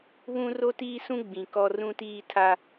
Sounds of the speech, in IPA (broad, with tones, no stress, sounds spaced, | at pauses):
β ũ˦ r o˦ t iː˦ s ũ˦ ɡ͡b ĩ˨ k ɔ˦ r ũ˦ t iː˦ tʰ a˦